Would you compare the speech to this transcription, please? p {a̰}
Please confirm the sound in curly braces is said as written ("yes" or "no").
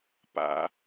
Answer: yes